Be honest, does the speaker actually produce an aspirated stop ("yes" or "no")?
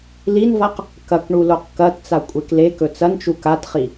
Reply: no